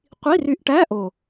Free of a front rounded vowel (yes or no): no